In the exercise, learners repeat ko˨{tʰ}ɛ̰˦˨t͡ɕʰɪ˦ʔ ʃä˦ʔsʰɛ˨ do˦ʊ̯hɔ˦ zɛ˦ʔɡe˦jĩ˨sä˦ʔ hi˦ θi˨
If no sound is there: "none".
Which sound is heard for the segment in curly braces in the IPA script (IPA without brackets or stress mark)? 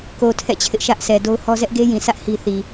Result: tʰ